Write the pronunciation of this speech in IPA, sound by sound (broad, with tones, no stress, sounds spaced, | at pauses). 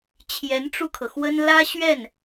t͡ɕʰ j ɛ˧˥ n ʈ͡ʂ u˧ kʰ ɤ˩ x w ə˥ n l ä˥ ɕ ɥ ɛ˥˩ n